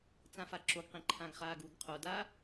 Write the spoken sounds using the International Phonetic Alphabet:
t͡s ã f a ǁ o ɡ q ĩ ǃʰ ã ɡ χ aː ɡ u ɡ qʰ o d a

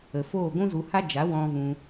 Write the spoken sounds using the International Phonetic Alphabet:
ə˨ f oː˦˨ ɡʷ ũ˦ z u˧ h a˦ d͡ʒ a˨˦ w ɔ̃˧ v ũ˧

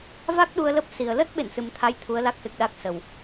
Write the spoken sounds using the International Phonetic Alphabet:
v a˦˥ k̚ ɗ u˧ ə̯ l ə˦˥ p̚ s i˨˩ ə̯ l ə˦˥ t̚ ɓ ḛ˧˨ n s ɨ˨˩ m t̪ʰ a˨˦ j t̪ʰ u˨˦ ə̯ l a˦˥ k̚ s ɨ˨˩ k̚ ɗ a˦˥ k̚ s ə˨˩ w

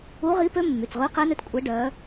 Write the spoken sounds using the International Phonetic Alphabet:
u˧˥ ʁ i˧˥ p ø˧˥ mː y˩˧˩ t͡s ʁ ʉ˧˥ q ɛ˧˥ n ø˧˥ t kʷʼ ɛ˧˥ ɖ œ˧˥

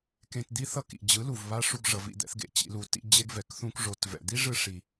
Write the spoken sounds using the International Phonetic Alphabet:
k ẽ˧ t d̪ i˦ θ ʌ˦ k ḭ˨ d͡ʑ ɯ˨˦ l u˨ v β a˧ ʂ u˧ ɡ ʐ ʌ˨ v ḭ˨ d̪ ɛ̰˧ θ ɡ ḛ˧ t͡ɕ ḭ˧ l u˧ t ḭ˧ d͡ʑ e˦ ɡ v ɛ˨ k θ ũ˧ k ʐ o˨ t v ɛ̰˨ d̪ i˦ ʐ ɯ˧ ʂ i˨

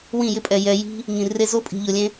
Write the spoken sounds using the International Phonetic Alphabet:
w ĩ˦˨ j ɪ˦ pʼ ɛ˨ j ɛ˧ j i̤˦ | ŋ ĩ˨ r e˧ z o˦ pʼ i̤˨ ʎ ʊ˨ lʲ ẽ˦

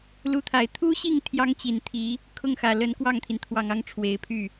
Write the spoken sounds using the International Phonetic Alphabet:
l u˥ t̪ʰ a˧˥ ɪ̯ t̪ʰ u˥ ɕ i˥˩ ŋ t̪ʰ j ɑ˥ ŋ t͡ɕ i˨˩ n t̪ʰ i˧˥ | kʰ ʊ˥˩ ŋ x ä˨˩ l ə˧˥ n k w ɑ˥˩ ŋ t̪ʰ i˩ n t̪ʰ w ɑ˨˩ ŋ ɑ˥˩ ŋ ʈ͡ʂʰ w e˧˥ ɪ̯ pʰ y˥˩

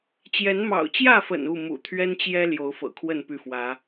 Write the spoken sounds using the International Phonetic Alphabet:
t͡ɕ j ɛ˨˦ n m ɑ̰˨˩ ʊ̯ t͡ɕ j ä˥˨ f ə̰˨˩ n u˥˨ m ṵ˨˩ t̪ʰ ɥ ɛ˦ n t͡ɕ j ɛ˦ l j o˨˦ ʊ̯ f ɤ̰˨˩ kʰ w ə˥˨ n p y˥˨ f w ä˨˦

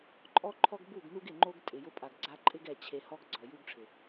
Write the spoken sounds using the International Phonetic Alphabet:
ǃʼ ɔ˦ ǃʰ ɔ˦ ɡ b u˦˨ ɡ n u˦ ɡ ɪ˨ ŋ͡ǃ o˦ ɡ tʼ ɪ˨ j ʊ˦ pʼ a˨ ɡ ɡ͡ǀ a˧ ǃʼ ɪ˦ ɡ ɛ˧ t͡ɕʰ e˧ h ɔ˦ ɡ ɡ͡ǀ ɔ˨ j u˦ ɡ ʈ͡ʂʰ ɪ˨

